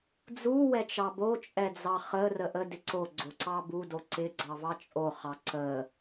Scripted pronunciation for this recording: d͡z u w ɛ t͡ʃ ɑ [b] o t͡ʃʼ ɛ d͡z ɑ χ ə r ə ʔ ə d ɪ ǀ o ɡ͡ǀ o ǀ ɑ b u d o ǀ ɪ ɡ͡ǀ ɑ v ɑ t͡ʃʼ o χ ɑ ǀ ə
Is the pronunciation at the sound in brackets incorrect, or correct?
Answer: correct